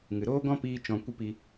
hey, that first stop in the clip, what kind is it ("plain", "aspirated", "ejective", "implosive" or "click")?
plain